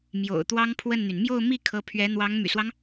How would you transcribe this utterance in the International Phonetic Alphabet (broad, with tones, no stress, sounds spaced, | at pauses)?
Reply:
m j o̰˨˩ ʊ̯ t̪ w ɑ˥ ŋ pʰ w ə˥˩ n n̪ y˩ n m j o˥˧ ʊ̯ m i˥˩ kʰ ɤ˧˥ pʰ ɥ ɛ˧˥ n̪ w ɑ˧˥ ŋ m y̰˨˩ s w ɑ˦ ŋ